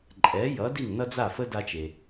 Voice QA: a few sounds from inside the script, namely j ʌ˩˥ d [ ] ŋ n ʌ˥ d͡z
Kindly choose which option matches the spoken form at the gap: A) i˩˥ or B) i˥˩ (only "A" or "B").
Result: B